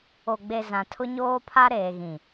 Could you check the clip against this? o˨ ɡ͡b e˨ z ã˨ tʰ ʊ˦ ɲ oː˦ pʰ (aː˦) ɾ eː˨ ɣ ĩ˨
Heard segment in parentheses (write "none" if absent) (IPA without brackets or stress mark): a˦